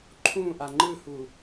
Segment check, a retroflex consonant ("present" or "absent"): absent